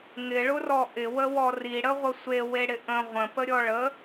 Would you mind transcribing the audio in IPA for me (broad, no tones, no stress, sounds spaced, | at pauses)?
ŋ ɪ ɭ ʊ r ɔ ʔ ɪ w ə w ɔ r i ɽ ə ʁʷ ə sʷ e w e ɽ ɪ ʔ ə̃ ʁʷ ə̃ p ə ɾʲ ɔ ɭ ə